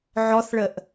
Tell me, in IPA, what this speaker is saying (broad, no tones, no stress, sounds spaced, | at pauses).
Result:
ʕ ɔ θ ɭ ə ʔ